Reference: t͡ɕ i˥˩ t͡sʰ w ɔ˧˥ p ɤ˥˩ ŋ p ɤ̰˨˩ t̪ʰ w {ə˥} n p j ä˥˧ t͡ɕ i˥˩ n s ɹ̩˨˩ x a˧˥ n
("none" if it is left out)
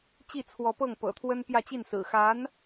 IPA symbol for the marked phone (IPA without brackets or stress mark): ə˥